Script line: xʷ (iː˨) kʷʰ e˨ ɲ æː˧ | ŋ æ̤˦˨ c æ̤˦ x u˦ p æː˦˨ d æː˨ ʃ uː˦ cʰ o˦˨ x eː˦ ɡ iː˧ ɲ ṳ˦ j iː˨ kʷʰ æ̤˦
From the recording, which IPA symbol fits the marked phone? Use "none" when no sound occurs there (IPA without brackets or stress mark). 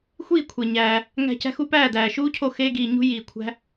iː˦˨